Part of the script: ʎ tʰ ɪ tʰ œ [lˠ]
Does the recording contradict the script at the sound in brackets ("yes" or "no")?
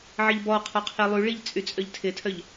yes